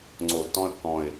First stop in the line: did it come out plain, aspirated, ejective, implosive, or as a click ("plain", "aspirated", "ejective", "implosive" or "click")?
click